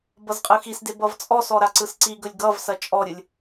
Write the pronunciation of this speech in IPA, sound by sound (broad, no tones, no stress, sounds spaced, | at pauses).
b ʌ z qʼ ɯ x i s d e b ʌ v t͡sʼ ɔ s ɔ ɾ a ǀ ɯ s ǀ i ɡ ɵ lʲ ɡ ʌ v s ɐ t͡ʃʼ ɔ ɾʲ ɯ lʲ